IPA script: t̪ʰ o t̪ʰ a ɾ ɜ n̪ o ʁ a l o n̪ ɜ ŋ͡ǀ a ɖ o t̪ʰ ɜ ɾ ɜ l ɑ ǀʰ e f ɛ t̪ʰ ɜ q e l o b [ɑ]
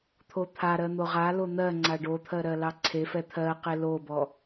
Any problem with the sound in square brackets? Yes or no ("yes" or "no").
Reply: yes